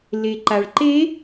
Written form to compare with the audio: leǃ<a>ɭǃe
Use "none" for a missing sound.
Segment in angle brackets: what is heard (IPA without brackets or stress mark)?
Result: a